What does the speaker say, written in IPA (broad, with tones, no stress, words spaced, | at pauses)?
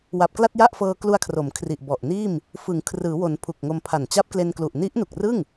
wa˨˩p̚kla˥˩t̚ja˥˩ʔfɤː˧ klu˧a̯kʰro˩˦m kʰri˨˩ʔbɔ˨˩ʔniː˥˩m | fɯ˩˦ŋkʰrɯː˩˦wo˩˦n pʰu˨˩k̚ŋo˧mpʰa˨˩n t͡ɕa˦˥p̚kle˧nklu˨˩ʔ ni˦˥ʔnu˨˩k̚rɯ˥˩ŋ